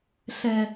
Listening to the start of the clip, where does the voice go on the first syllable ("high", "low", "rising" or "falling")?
low